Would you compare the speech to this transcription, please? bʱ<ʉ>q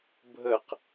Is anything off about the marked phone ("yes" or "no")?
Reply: yes